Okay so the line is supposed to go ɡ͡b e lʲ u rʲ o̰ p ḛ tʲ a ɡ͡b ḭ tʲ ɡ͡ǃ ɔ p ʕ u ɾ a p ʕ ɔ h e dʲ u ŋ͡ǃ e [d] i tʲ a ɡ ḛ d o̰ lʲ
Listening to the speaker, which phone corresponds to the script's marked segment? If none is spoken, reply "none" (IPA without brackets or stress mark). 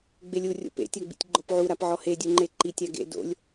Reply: ǃ